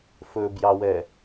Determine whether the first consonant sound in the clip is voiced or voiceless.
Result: voiceless